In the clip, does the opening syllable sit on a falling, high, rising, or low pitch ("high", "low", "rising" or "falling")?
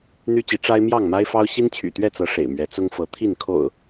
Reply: high